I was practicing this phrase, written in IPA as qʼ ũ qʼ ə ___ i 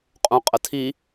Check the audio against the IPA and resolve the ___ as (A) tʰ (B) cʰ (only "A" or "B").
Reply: A